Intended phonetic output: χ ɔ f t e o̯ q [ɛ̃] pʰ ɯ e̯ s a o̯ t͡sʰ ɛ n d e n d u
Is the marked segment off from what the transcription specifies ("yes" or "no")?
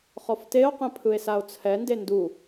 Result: no